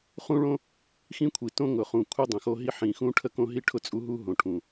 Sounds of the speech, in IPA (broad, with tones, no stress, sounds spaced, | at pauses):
χ ũ˦ ɭ õ˦ | x ĩ˦ kʷʰ i˨˩ t õ˦ ŋ ʊ˨˩ χ ũ˨˩ kʷʰ i˦ dˤ ə̃˨˩ x o˦ ɦ i˦ ħ ĩ˨˩ x ũ˦ ʈʰ ə˦ k õ˦ ɦ i˦ ʈʰ ʊ˦ t͡sʼ u˦ ɦ u˦ ɦ õ˨˩ ʈʰ ũ˨˩